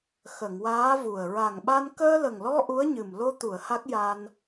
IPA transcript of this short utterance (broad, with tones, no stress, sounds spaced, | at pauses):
x ə˨˩˨ ŋ w aː˧˥ v u˨˩ ə̯ ɹ a˨˩ ŋ ɓ a˧ n k əː˧ l ə˨˩ ŋ l ɔ˧ ʔ u˧˥ ə̯ ɲ ɨ˨˩ m l o˧ t̪ u˨˩˨ ə̯ h a˦˥ k̚ j a˧ n